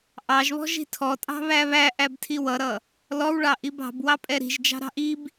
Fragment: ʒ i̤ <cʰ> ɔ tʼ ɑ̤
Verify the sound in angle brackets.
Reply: incorrect: tʰ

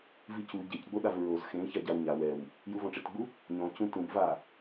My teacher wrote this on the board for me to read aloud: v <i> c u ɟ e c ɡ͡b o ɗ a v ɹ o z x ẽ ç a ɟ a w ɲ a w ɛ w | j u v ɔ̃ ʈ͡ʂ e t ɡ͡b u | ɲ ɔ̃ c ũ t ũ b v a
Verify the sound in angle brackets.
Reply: correct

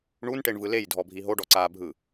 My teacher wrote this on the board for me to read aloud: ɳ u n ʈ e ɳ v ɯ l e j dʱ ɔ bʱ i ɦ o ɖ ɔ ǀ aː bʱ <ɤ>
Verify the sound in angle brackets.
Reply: incorrect: ɯ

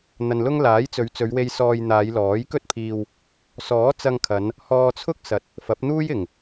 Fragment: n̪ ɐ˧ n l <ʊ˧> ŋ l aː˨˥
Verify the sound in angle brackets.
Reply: incorrect: ʊ˥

